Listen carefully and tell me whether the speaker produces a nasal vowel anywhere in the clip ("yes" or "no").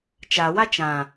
yes